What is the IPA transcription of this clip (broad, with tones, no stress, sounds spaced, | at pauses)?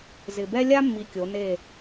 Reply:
z ɪ˨ b ɛ˦ lʲ a˦ mː i˨ kʲ o˨˦ n e˦˨